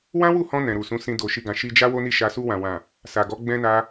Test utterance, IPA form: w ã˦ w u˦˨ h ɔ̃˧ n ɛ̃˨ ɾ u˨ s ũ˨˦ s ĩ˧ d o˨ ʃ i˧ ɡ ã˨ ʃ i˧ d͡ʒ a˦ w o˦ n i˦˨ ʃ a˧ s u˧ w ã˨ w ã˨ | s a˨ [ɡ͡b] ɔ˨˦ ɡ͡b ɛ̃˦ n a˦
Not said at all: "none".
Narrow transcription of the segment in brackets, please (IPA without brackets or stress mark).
ɡ